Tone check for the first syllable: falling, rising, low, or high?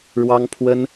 high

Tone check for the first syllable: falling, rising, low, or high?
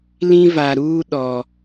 high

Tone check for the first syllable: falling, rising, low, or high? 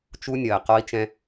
high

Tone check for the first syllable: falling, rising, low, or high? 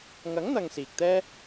rising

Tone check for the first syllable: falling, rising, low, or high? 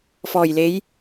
low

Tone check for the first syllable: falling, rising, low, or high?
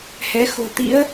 rising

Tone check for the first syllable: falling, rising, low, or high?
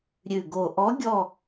low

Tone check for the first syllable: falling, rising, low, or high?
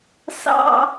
high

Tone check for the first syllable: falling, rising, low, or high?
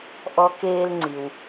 high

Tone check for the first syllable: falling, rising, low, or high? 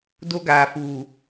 high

